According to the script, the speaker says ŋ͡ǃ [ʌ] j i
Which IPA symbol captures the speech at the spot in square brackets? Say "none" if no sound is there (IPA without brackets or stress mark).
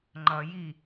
ʌ